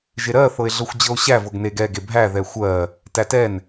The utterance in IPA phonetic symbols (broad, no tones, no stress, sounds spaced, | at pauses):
ʒ e ɾ ɜ θ ɤ e̯ ɮ ɤ xʷ d͡ʑ ɤ o̯ ɕ æ v ɤ ɡ n e ɡ ɛ ɡ e bʱ æ ð ɛ xʷ ɜ | t æ t ɛ n